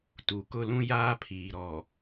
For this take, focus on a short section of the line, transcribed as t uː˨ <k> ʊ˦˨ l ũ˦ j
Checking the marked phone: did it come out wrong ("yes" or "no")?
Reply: no